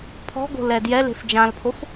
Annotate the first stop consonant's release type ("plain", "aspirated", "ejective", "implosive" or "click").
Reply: aspirated